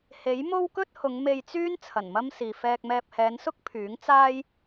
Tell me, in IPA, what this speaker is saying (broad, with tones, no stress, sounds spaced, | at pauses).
h e˨˥ j m o˥ w k ɵ˥ t̚ h ʊ˨˧ ŋ m e˧ j t͡s yː˥ n t͡sʰ ɐ˨˩ n m ɐ˥ m s iː˨ f ɛː˧ k̚ m ɛː˧ p̚ h ɛː˨˧ n s ʊ˥ k̚ pʰ yː˨˥ ŋ t͡s aː˥ j